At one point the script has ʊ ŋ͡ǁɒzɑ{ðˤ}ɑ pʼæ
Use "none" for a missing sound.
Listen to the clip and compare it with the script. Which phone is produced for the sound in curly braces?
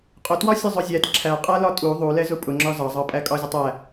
zˤ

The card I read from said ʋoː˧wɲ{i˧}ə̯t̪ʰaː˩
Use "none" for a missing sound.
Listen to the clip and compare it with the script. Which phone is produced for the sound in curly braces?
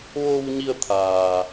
i˧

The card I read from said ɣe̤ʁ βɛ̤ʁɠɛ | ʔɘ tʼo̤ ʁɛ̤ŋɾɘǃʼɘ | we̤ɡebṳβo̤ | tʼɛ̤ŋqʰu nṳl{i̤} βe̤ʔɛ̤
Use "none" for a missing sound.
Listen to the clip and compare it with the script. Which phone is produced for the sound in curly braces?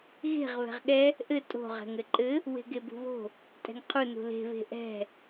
e̤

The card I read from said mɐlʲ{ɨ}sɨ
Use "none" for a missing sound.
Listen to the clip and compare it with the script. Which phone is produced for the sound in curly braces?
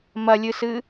ɨ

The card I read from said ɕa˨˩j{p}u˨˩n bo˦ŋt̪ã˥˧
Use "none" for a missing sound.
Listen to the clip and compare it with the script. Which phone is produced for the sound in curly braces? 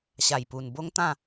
p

